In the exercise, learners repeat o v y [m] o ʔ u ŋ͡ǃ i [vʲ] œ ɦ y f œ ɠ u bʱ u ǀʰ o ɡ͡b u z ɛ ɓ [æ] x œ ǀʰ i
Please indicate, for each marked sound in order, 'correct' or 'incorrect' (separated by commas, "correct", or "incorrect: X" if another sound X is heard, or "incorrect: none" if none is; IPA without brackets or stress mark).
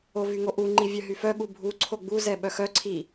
incorrect: ŋ, correct, incorrect: œ